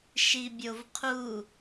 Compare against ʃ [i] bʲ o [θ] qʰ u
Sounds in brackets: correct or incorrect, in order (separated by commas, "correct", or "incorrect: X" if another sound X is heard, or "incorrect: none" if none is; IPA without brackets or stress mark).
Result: correct, incorrect: v